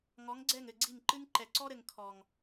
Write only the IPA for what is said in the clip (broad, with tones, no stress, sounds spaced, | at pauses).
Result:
ŋ ɔ˨˦ ŋ ɡ͡ǀ ɛ˦˨ ŋ ɘ˦˨ ɡ͡ǀ i˦˨ ŋ ǃ ɨ˦ ŋ ǃ ɛ˨ ǀ ɔ˦ ɾ ɘ˨ ŋ kʰ ɔ˨ ŋ